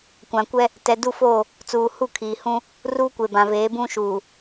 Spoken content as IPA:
kʷã˨kʷɛ˦ | tɛ˨du˦˨foː˦˨ | t͡suː˨hu˦˨kʰiː˨hũ˦ | ruː˦kʷe˨bã˨veː˨˦ bũ˦ʃuː˨

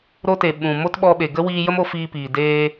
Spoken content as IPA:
ɾo˧te˨ ɓũ˨ mo˦t ɓɔ˧ɓe˨ɡə˦ wiː˧jə˦mo˧ fiː˧piː˨ deː˧

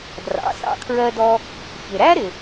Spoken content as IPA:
drɑ̰˩˥sɑ̰˧kʰɹɜ˧dɔ˧ | çɪ˩ɾæ˥ɾɪ˩

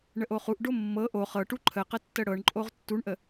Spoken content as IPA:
ɳəʔoχuʔɖo mːɤ ʔo χɤʈu ǃʰəqə tːəɽɤɳǃʼoʁ tːuɳʔə

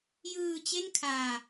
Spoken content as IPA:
jɯː˧ t͡ɕe˥˩nkʰaː˧

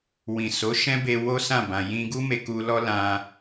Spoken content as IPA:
wĩ˨ so˨˦ʃɛ̃˦be˧ wo˦sã˦˨ bã˨jĩ˧ɡu˦ me˧ku˧ lɔ˦lã˧

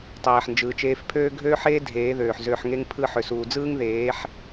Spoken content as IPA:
tˤeː˨ħnd͡ʒɯː˨t͡ʃeː˧fpʰøː˦ ɡʱøː˦ħeː˦ dʱeː˨˦ðøː˨ħzøː˧ħŋe˦ŋ pʰɯ˧ ħø˨suː˨d͡zɯː˦ŋðeː˨˦ħ

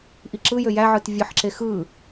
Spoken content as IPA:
ʔiǁɯjø jæʕɯt vʲɯħǁe xɯ

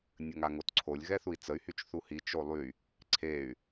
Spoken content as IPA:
nʲəŋaŋotǀʰolʲ ɣɛθui̯t͡səy̯ hyt͡ʃθuhi t͡ʃolˠy | ǀʰey̯

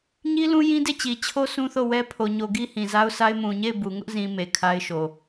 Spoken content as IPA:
ɲi˦lũ˦ jĩ˦de˦˨t͡ɕi˨ t͡ɕʰo˦ sũ˦θo˦˨wɛ˦ pʰo˨ɲo˨ ɡi˦hĩ˨za˦ʊ̯sa˦ɪ̯ mũ˨ɲe˦˨ɪ̯ bu˨ŋʊ˦ʔ zĩ˨ me˨kʰa˦ɪ̯ʃo˨

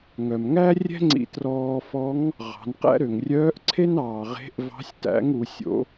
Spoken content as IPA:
ŋœ˩m ŋæ˥rʲɛ̤˥ŋ͡ǀḭ˧ trɔː˧fɔ˧˥ŋ | ʁɑ̤˩˧nqæ̰˥ ɾø˩ŋrʲœː˧˥ʔ ǀʰe˥nɑː˩ ʁe̤˧˥ʔvɑ̤˧˥sʲtæ̰˧˥ŋ u˩˧sʲo̰˧˥

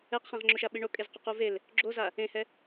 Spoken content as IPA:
ɛqχẽʁŋ͡ǁoʃa ɓiɳokʼez qoquvel | ɡ͡ǁoza | ẽhɛ

